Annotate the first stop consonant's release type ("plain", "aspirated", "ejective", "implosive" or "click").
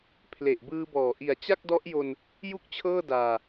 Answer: aspirated